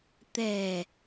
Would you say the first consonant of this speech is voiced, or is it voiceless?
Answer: voiceless